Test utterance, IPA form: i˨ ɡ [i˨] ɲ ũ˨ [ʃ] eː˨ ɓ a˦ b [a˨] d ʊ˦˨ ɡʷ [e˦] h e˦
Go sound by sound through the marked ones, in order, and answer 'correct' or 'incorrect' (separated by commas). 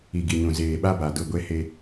correct, incorrect, correct, correct